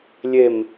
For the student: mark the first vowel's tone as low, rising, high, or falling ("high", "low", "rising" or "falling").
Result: low